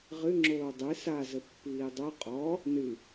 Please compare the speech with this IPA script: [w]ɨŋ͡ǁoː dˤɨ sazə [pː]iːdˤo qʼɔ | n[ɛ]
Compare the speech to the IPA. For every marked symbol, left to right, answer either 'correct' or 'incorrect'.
incorrect: ʁ, correct, incorrect: ɨ

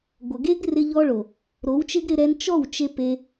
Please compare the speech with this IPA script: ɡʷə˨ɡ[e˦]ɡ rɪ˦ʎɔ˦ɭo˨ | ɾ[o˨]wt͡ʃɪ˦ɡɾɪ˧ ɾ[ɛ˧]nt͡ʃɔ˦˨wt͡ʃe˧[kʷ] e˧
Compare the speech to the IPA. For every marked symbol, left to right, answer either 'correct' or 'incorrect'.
correct, incorrect: o˨˦, correct, incorrect: p

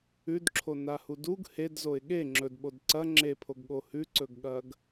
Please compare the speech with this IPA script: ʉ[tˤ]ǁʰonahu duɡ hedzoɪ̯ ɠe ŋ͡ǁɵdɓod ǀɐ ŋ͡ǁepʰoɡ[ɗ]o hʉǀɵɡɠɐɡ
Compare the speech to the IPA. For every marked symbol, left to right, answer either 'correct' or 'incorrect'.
incorrect: d, incorrect: ɠ

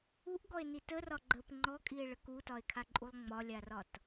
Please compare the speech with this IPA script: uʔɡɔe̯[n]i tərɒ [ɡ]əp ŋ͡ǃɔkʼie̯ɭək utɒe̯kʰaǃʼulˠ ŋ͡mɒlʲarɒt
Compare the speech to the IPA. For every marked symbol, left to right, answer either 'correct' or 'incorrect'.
correct, incorrect: ɡ͡ǃ

